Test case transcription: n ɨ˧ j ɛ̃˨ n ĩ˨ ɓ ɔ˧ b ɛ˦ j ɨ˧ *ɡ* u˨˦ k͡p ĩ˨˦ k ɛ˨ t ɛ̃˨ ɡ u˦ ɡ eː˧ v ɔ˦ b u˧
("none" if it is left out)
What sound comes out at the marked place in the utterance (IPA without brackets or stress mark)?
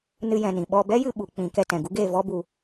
ɓ